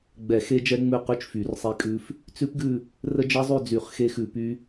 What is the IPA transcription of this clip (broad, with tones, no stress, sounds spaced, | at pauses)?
ɡ͡b ɛ˨˩˦ x e˦˥ d͡ʒ ɛ˦˥ ŋ͡m ʉ˦˨ q ʉ˦˥ t͡ʃ f y˨˩˦ r sˤ e˦˥ kʼ ʉ˦˥ f | t͡s ʉ˦˥ p ɡ ʉ˦˨ | r ə˦˥ d͡ʒ ə˦˥ zˤ ʉ˦˨ d͡z y˨˩˦ χ x e˦˥ x ʉ˨˩˦ p y˦˥